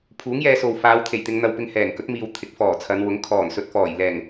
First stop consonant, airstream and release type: aspirated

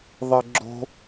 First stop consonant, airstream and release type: click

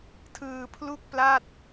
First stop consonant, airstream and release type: aspirated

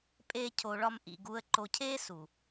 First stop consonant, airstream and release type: ejective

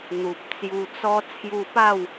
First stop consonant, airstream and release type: plain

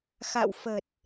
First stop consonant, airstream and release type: plain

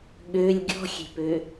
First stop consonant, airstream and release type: implosive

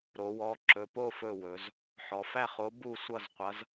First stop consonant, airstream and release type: click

